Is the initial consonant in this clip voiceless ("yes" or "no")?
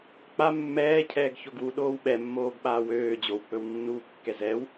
yes